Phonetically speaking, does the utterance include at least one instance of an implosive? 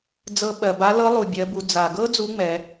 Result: yes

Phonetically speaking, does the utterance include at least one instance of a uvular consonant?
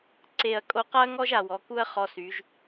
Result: yes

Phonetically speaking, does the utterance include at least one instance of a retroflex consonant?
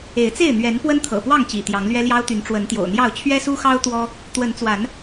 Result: yes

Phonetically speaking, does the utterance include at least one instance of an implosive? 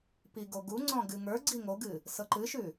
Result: no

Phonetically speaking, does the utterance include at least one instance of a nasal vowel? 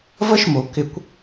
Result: no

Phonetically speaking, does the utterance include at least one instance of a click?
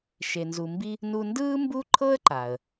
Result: yes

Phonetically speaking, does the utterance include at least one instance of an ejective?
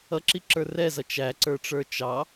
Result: no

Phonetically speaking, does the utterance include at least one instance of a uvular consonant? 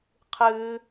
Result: yes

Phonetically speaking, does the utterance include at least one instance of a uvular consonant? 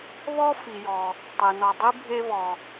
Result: no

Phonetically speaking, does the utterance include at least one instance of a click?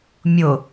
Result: no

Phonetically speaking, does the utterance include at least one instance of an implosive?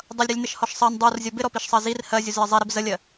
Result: no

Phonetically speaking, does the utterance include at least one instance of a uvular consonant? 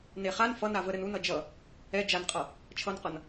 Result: yes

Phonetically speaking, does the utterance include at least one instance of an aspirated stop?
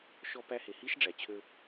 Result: yes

